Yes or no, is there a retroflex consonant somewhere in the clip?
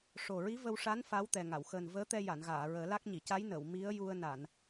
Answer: yes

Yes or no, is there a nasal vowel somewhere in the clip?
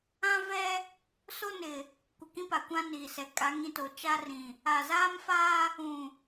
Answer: yes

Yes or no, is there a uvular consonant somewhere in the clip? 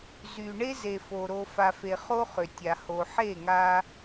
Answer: yes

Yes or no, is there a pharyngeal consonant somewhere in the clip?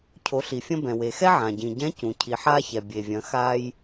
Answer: yes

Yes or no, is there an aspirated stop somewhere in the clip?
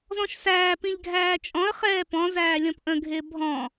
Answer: no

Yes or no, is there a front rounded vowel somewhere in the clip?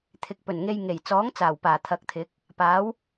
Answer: no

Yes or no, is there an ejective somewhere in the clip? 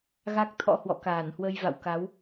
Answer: no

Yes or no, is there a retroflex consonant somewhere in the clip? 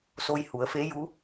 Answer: no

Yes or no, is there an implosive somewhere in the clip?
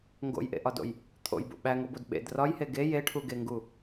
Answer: yes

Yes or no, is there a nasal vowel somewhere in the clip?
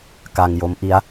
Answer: no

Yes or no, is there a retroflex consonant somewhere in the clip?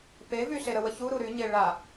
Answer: yes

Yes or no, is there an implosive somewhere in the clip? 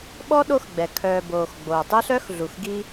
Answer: yes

